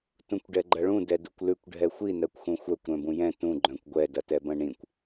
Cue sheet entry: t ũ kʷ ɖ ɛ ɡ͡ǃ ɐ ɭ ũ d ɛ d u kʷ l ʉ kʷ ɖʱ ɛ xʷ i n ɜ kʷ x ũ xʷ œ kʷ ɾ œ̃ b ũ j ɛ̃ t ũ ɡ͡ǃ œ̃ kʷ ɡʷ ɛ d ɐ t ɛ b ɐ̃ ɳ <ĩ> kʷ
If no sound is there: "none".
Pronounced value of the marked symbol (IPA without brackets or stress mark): ĩ